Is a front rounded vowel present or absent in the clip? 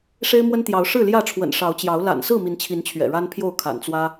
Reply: absent